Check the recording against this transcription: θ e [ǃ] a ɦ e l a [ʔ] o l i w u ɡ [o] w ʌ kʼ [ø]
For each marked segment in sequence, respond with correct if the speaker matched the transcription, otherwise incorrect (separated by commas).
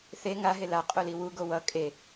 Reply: incorrect, incorrect, correct, incorrect